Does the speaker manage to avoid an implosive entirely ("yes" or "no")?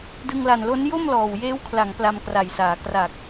yes